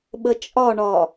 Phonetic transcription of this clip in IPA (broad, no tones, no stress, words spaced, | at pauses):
ɓət͡ʃʼɒɳɒ